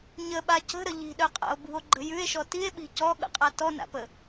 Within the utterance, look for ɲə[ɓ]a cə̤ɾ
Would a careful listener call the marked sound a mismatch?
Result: no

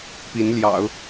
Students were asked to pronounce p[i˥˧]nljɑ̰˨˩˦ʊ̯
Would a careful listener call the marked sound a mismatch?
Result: yes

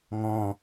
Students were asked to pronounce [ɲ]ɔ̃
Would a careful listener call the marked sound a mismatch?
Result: yes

